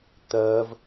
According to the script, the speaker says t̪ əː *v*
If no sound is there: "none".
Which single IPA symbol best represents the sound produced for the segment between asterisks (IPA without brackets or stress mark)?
v